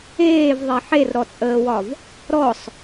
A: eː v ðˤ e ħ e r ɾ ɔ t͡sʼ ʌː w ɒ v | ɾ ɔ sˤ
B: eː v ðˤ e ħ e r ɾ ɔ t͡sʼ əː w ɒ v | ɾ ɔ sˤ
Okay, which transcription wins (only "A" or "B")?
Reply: B